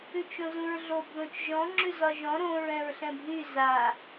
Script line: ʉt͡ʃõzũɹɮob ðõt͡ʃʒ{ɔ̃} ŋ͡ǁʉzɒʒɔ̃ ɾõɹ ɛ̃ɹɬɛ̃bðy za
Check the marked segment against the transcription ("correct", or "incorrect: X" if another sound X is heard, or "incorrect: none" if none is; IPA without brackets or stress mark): correct